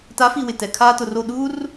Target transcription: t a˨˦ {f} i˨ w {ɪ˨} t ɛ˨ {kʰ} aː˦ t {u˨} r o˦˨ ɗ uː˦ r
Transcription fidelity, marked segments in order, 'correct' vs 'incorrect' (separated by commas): correct, correct, correct, incorrect